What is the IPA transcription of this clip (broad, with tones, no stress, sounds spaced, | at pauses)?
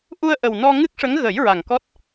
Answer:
ʔ u˧ ə̯ ʔ ə˨˩ w n ɔ˧ ŋ ɨ˦˥ k̚ ʂ ə˧˥ ŋ ɣ ə˨˩˦ j ɹ a˨˩ ŋ k ɔ˦˥ t̚